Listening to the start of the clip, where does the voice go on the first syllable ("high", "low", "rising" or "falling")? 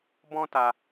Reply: high